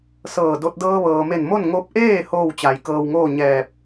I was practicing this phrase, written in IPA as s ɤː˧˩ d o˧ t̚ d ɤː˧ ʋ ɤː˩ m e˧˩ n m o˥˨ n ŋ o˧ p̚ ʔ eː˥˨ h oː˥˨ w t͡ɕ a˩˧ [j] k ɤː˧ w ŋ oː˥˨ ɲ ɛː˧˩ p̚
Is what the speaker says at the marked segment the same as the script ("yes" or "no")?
yes